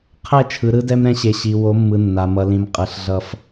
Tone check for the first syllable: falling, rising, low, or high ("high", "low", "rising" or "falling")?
falling